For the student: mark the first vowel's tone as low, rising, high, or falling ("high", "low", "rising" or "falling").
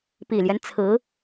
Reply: low